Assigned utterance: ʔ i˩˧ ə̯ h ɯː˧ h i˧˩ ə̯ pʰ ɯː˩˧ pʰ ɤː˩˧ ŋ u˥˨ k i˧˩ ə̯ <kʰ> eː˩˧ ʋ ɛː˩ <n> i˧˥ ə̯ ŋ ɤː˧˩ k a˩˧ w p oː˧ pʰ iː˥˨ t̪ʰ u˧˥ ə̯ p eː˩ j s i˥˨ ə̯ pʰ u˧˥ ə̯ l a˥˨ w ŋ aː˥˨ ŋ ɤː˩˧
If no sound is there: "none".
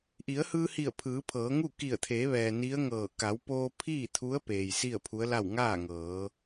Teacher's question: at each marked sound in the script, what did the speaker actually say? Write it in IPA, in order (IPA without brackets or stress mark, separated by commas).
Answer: t̪ʰ, n